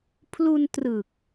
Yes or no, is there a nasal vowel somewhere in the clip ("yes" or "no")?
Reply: no